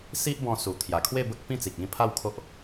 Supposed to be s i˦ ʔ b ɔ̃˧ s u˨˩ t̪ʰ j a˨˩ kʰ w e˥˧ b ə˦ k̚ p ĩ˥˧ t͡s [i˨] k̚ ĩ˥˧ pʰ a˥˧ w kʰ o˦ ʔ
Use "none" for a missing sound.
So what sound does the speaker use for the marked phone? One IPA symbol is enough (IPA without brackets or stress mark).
i˨